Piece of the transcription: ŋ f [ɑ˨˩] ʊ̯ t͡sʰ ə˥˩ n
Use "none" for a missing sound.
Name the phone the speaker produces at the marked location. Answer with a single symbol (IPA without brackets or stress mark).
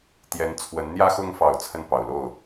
ɑ˨˩